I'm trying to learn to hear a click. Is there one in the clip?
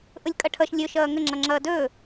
yes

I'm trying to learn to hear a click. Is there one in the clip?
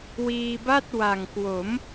no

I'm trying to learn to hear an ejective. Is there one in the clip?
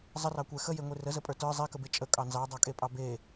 yes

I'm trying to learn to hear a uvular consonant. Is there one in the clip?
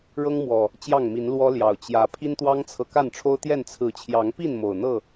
no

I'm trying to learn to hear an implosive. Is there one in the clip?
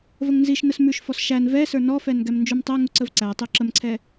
no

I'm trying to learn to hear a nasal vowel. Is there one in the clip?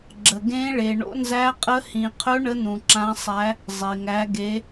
yes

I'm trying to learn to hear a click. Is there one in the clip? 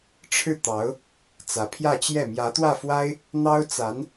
no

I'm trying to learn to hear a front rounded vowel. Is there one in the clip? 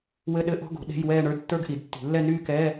yes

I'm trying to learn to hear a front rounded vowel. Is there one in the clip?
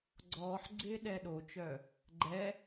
yes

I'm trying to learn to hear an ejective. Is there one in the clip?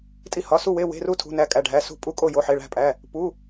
yes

